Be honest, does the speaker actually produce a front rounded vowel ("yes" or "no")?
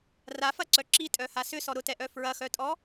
yes